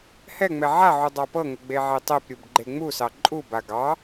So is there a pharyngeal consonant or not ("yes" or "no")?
yes